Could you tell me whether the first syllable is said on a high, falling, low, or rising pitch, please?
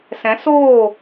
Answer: rising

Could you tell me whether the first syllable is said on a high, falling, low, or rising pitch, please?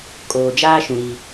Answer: low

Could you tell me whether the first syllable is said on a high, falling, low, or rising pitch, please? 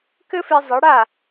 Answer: high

